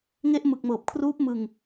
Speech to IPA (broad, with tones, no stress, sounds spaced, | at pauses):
ŋ e˦˥ ʔ m ɯ˨˩ k̚ m ɤː˨˩ p̚ kʰ r uː˦˥ p̚ m ɯ˧ ŋ